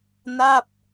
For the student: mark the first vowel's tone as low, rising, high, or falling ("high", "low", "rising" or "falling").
falling